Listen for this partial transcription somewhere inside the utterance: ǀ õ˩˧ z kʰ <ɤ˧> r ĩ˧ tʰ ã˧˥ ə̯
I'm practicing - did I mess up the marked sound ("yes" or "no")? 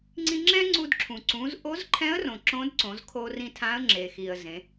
yes